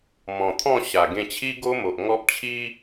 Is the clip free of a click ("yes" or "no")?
yes